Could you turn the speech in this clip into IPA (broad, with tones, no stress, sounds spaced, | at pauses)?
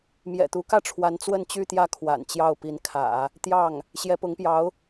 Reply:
m j ɛ̰˨˩ t̪ u˧˥ k ä˥˩ ʈ͡ʂʰ w a˧˥ n t͡s w ə˥˧ n t͡ɕ y˥˧ t̪ j ä˥˩ kʰ w a̰˨˩ n t͡ɕ j ɑ˥˩ ʊ̯ p i˧˥ n kʰ ä̰˨˩˦ | t̪ j ɑ˥˩ ŋ | ɕ j ɛ˧˥ p ʊ˧˥ ŋ p j ɑ˧˥ ʊ̯